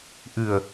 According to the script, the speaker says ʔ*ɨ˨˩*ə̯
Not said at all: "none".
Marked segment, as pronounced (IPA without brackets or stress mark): ɨ˨˩